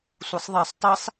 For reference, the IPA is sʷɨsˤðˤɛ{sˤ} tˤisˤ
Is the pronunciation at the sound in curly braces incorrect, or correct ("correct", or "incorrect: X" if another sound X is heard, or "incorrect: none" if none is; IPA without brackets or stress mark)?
correct